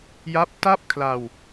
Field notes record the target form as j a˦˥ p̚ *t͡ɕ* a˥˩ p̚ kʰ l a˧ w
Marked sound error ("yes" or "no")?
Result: yes